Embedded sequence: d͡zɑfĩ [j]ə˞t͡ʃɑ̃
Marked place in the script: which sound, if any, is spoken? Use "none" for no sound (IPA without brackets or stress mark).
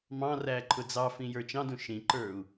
j